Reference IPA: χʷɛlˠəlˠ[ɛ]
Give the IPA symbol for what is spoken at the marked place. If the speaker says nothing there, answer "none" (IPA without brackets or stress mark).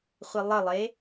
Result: e